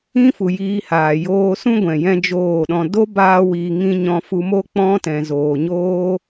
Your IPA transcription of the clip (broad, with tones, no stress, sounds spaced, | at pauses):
ĩ˦ f u˨ j iː˧ h aː˨ j oː˧ s ũ˦ ɡʷ ɛ̃˨ j ɛ̃˦ d͡ʒ oː˦˨ ɗ ɔ̃˧ d o˦ b aː˧ w iː˨ ŋ ĩ˧ ɲ ɔ̃˧ f u˧ m o˦ k͡p ɔ̃˦ t ɛ̃˨ z oː˨ ɲ oː˦